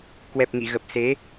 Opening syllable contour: low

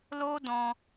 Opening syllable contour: high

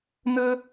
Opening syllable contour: high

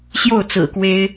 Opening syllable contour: falling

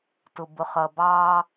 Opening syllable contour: low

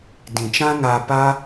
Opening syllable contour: low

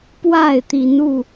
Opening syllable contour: falling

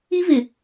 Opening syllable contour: high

